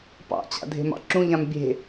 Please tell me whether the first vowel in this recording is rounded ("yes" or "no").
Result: no